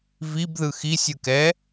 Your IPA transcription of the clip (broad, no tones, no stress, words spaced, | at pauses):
vibðɯ xisʲɯkɛ